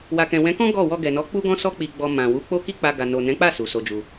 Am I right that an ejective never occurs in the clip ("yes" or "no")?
yes